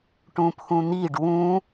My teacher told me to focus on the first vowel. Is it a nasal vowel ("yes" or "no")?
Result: yes